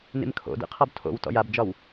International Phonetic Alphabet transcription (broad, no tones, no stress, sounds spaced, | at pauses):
n ḭ m kʰ o̰ d ḭ qʰ ɔ b tʰ o̰ w t ɔ̰ j a b d͡ʒ ɒ w